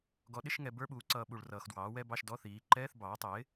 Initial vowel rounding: rounded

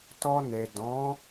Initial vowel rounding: rounded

